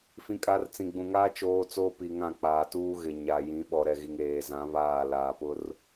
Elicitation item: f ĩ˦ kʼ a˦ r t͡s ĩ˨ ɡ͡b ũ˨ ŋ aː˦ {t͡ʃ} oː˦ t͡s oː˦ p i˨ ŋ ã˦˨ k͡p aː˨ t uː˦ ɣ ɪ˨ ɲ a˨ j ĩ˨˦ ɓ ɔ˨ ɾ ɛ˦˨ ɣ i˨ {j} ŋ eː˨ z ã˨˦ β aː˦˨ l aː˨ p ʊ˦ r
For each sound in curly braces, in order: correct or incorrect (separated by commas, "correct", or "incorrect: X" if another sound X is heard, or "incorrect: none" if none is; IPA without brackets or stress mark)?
correct, incorrect: none